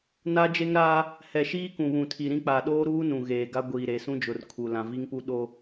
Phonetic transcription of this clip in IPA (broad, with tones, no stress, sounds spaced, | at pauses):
n a˦ d͡ʒ e˦ ŋ ɾ aː˦ | h ɛ˨ ʃ iː˦ k ũ˨ β ũ˨ tʰ i˨ ɾ ĩ˦ k͡p a˨ ɗ oː˦ ɾ uː˦ n ũ˨ ɣ eː˨ ɡ a˦ ɡʷ iː˨ ɾ e˨ s ũ˦ d͡ʒ ʊ˨ r kʰ u˨ l ã˨ v i˦ ŋ p u˦ ɗ o˦